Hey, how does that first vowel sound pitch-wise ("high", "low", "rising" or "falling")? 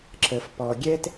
low